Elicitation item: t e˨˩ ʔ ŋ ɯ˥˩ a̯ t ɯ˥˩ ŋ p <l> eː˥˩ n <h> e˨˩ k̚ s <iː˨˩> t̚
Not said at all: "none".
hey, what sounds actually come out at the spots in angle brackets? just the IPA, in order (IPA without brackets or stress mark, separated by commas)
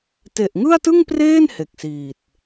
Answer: r, h, iː˨˩